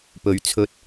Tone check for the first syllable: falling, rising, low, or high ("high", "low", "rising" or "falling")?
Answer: low